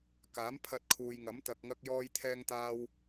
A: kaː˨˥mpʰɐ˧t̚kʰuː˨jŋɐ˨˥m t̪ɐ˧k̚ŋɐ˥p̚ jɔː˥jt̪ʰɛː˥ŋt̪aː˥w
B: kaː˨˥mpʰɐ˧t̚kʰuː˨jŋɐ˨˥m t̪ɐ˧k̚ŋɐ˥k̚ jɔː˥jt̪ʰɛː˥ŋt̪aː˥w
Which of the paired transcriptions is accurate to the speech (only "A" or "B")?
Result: B